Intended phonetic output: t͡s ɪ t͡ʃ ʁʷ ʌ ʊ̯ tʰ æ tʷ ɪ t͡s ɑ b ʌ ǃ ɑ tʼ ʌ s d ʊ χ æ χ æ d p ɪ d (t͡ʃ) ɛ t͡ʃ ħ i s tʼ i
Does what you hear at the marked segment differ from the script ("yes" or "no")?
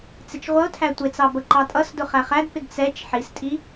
yes